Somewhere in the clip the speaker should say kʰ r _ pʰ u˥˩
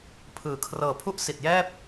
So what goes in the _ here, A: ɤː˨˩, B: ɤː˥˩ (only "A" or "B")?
A